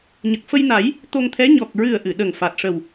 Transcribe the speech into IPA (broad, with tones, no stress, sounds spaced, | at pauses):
ɲ ə˨˩ k̚ f ə˧ j n a˨˩˦ j | t̪ o˧ ŋ t̪ʰ ɛ˧˥ ɲ ɔ˨˩ k̚ ɹ ɨ˨˩ ə̯ ʔ ɨ˨˩˨ ɗ ə˨˩ ŋ f a˨˩ t̚ ʂ ə˨˩ w